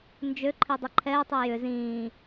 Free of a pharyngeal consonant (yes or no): yes